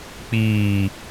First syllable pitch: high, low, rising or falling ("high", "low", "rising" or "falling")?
low